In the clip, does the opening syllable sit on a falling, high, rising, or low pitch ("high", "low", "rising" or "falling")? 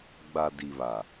low